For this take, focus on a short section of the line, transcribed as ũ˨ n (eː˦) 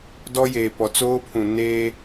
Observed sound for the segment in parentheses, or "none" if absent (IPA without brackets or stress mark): eː˦